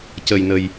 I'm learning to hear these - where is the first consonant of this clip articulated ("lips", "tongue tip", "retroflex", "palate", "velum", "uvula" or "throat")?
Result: palate